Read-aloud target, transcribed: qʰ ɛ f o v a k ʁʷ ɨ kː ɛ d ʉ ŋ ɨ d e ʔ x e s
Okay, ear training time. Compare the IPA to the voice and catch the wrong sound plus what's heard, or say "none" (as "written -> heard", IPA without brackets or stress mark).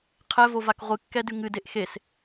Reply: f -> v